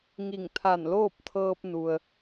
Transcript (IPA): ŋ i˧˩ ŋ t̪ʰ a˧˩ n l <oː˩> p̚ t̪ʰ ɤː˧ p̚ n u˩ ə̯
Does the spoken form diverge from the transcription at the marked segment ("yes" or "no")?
yes